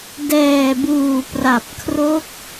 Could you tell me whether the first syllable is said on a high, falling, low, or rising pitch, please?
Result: low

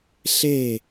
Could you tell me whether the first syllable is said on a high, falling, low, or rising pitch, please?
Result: falling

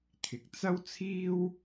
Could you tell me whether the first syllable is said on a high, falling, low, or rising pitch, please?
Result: low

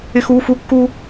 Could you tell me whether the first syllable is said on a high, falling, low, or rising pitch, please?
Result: high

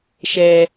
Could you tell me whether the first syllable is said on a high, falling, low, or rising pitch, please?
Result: high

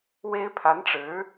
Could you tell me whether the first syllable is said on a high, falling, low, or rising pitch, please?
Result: high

